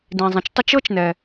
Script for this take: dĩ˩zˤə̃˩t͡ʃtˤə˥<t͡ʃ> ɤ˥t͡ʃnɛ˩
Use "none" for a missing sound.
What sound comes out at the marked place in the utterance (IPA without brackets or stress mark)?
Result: t͡ʃ